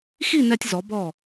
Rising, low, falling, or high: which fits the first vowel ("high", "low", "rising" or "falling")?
falling